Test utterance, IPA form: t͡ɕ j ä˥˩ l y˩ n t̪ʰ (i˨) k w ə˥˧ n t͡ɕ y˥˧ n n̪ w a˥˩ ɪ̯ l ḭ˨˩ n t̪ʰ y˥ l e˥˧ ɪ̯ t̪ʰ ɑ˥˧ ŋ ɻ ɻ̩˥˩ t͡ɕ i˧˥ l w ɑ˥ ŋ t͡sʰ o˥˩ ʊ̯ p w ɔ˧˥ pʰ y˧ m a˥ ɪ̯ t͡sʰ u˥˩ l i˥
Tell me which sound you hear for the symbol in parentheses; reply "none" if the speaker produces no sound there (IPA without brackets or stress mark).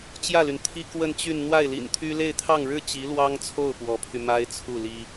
i˥